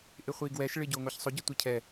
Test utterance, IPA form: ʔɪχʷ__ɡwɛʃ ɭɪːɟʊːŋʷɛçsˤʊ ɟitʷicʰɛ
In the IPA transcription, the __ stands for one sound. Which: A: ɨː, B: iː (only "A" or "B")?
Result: B